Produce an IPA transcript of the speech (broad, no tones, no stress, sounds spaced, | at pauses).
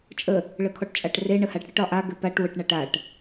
t͡ʃʼ ə | ɭ ə kʰ ɔ ʈ t͡ʃʼ a ʈ r e ɳ ə h a ʈ ɽ ə ʈ ɒ ʔ a ɡ ɘ p a ʈ w ɘ ʈ ɳ a ʈ a ʈ